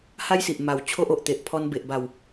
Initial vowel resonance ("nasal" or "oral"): oral